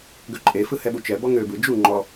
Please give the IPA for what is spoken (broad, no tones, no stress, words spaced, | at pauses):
ɡøǃʼefɯ hɛɓut͡ʃɛbɔ ŋøbɯ d͡ʒu ŋ͡ǃɔ